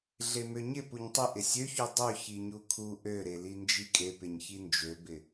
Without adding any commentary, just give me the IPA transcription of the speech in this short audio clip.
ɮemøɲɪ puɲtˤɪ ʔɪsʲøçu dˤø çiɲukʰu ʔøɾeli nd͡ʒikʼepɪɲ çind͡ʒøbɪ

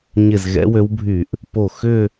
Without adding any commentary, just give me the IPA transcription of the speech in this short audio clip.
ɲɪ˧˩zɣɛ̰˨˦wø˨˦wbʱy˧˩˧ʔ | po˧˩ xʏ˥˧

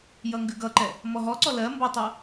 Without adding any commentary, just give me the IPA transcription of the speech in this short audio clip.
jʌŋɡʉɡʌǃɛ | mɔɦɔǀɔ lɜ mbʌtˤʌ

